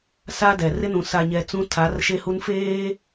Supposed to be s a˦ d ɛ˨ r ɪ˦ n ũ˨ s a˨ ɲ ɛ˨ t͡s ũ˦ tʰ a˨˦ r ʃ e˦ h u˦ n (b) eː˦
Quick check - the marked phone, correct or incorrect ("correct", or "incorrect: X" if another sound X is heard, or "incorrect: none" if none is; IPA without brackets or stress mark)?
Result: incorrect: f